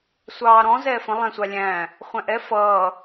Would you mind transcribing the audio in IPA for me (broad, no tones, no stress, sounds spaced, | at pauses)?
sʷ ɑː ɾ ɔ̃ z ɛː f ə̃ lˠ æ̃ sʷ ɑ lʲ æ̃ | χʷ æ̃ ʔ ɛ f ʌː